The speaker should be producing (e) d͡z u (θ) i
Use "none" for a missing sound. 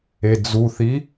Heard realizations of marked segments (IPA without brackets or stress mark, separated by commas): e, θ